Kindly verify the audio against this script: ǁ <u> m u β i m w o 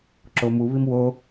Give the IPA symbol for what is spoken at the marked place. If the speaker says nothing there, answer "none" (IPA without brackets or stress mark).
o